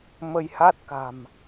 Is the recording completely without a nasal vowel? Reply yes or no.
yes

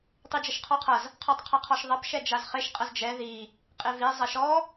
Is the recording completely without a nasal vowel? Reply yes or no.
yes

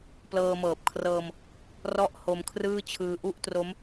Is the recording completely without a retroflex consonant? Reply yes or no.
yes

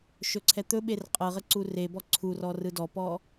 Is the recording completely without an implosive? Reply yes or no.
no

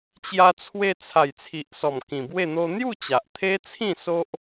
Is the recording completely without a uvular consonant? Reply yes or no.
yes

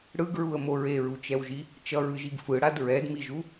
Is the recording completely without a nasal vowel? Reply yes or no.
yes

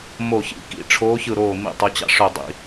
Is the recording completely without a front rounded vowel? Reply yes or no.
no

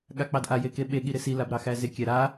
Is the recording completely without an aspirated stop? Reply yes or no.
yes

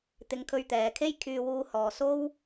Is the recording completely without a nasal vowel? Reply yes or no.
yes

